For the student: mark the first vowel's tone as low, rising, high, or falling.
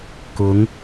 rising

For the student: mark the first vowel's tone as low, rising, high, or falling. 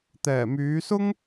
low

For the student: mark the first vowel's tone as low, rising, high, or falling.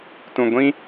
low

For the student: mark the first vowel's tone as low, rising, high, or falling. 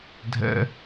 high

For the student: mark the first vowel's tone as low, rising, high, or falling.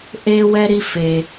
high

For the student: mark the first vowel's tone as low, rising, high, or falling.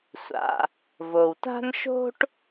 low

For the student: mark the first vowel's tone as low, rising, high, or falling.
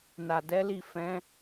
low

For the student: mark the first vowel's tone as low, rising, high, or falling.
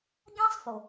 high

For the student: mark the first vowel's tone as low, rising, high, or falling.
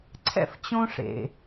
high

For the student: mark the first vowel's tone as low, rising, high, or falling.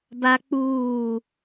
high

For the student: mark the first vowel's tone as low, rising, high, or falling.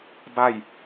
falling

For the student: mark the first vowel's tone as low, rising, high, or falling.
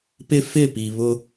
high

